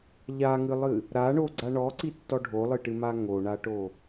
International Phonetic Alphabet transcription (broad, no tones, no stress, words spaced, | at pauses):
ʎaŋɨlˠɨ | ɾaɳoɡ͡ǀa ɳɔǀitːɔ ɖʱolˠɨʈɨma ŋoɳaʈo